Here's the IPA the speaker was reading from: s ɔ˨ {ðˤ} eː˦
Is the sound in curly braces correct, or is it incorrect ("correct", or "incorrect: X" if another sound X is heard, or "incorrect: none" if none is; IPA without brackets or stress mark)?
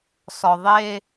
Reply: correct